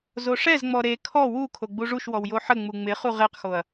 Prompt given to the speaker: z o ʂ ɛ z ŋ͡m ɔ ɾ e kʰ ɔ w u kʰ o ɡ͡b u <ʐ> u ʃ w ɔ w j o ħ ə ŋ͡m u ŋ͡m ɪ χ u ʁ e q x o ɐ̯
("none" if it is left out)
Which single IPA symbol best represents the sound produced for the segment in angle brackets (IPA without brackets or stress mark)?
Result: ʐ